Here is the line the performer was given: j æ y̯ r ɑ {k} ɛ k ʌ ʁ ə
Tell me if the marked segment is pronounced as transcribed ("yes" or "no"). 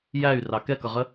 yes